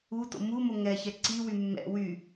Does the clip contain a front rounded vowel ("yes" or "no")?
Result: yes